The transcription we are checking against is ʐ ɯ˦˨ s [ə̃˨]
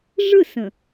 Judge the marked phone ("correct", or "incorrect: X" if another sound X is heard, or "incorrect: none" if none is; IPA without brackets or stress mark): correct